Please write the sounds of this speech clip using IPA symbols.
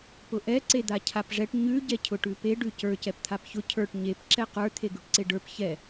p ʊ ʔ ɛ ǀ e d̪ a cʰ a p ʐ ɛ ʈ ɲ ʉ ɟ ɛ cʰ ʊ ʈ ʉ p e ɖ ʉ c ə˞ c ɛ p t̪ʰ a p ç ʊ cʰ ə˞ ʈ ɲ e p ǁ ɛ q ə˞ t̪ʰ e ɡ ʉ ʈ ǀ e ɖ ə˞ p ç ɛ

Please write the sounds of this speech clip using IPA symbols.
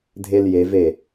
dʱ e l j e v e

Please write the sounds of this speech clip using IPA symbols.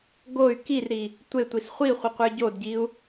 ɡ o y̯ k i r ɾ i | tʷ e tʷ i s χʷ i χʷ i qʷ ə˞ ɟ o d ɟ i u̯

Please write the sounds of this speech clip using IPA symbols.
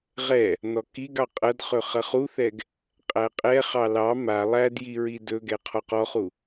ʁ ɛ | n ɔ k i ɡ ɑ qʼ ɐ d χ ɵ χ ɐ χ u θ ɛ ɡ | qʼ æ qʼ ɛ χ ɑ l ɑ m a lˠ æ d j i ɹ i d ɵ ɡ ɛ qʰ ɔ q ɔ χ u

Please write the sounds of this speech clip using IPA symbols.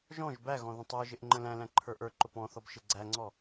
ʒ ɔ̃ ʒ b æ ɣ ɔ̃ ð ə̃ tˤ ə˞ ʒ ɪ ʔ ŋ͡ǃ ə̃ l æ̃ l æ̃ ǃʰ ə˞ ʔ ə˞ ǃ ʊ p ɔ̃ θ ɔ b ʃ ɪ ɡ͡ǀ æ ŋ͡ǀ ɔ

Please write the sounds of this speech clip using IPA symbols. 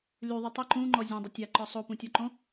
l y ðˤ y tˤ ʏ ǃ ũ ŋ͡ǃ ɔ zʲ õ dˤ ɪ tʲ a ǃ ɔ sˤ o p ũ tʲ ɔ ǃ õ

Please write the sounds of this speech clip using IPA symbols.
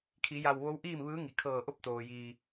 kʰ i˩˧ j a˧˩ w ʋ o˧˥ w ʔ iː˥˨ m ʋ ɯː˧˥ ŋ i˩ kʰ ɤː˧˩ ʔ o˥˨ p̚ t̪ oː˩ j iː˩

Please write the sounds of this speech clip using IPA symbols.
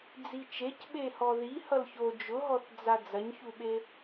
d͡z i t͡ʃ e c ɓ e h ɔ ð i h ʌ l ç o d͡ʒ ʊ ɦ ɔ θ d͡z a d͡z ɐ ɲ ç u ɓ e

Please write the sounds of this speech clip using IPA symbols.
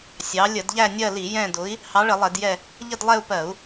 sʲ ɑ˨˥ lʲ ə˧˩˧ d ʎ æ˦˨ nʲ ɜ˦˨ l i˧˩˧ j ɛ̃˦˨ d ʊ˨˥ i̯ | h ɑ˨˥ ɭ ə˧˩˧ lˠ ɛ˧˩˧ d j ɛ˦˨ | ʎ ə˦˨ d lˠ ɛ˦˨ u̯ p ɜ˧˩˧ u̯

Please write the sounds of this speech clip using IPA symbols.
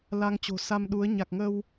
l a˧ ŋ t͡ɕ o̤˨˩ s a˧ m ɗ u˨˦ ə̯ ɲ a˨˩ k̚ ŋ ə˧ w

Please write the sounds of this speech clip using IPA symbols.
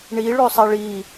ɳ i ɭ ø sˤ ɛ ɭ i

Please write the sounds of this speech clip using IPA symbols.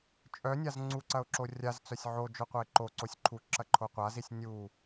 t͡ʃʼ œ nʲ a z ŋ͡ǀ u ǀ ɐ ʊ̯ ǁ o rʲ a z t͡s œ sʲ ʕ o d͡ʒ œ qʷ ɐ ɪ̯ ǃ o ǀ o sʲ ǃʰ u ǁ ɐ ǃʰ o qʷ a z i sʲ nʲ u

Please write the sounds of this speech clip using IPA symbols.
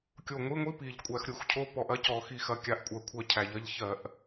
kʲ o˧˩ ŋʷ i˧˥˧ ŋʷ i˧˥˧ p i˧˩ ʎ kʷʼ æ˧˩˧ x ɾʲ u˧˩˧ x cʰ o˧˥˧ p ɔ˧˩˧ ʔ ɐ˧˥˧ c ɔ˧˩˧ x i˧˩ x ɐ˧˩ kʲ a˧˩ ʔ kʷʼ ɜ˧˩˧ kʷʰ ɜ˧˩ cʰ æ˧˩˧ ʎ ɐ˧˥˧ ʎ ç ɜ˧˩˧ ʔ

